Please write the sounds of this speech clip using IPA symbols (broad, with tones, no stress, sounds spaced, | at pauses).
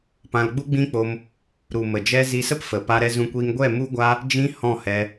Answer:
p ã˧ l ɡ͡b u˦ ɡ͡b ĩ˦ k͡p o˧ m | ɾ u˨ m ə˨ d͡ʒ ɛ˧ z i˧ s ə˦ p f ə˨ p a˧ ɾ ɛ˧ z ũ˧ kʷ iː˧ ŋ ɡʷ ɛ˦˨ m u˦ ɡʷ a˦ | d͡ʒ ĩ˧ h ɔ̃˦˨ h ɛ˧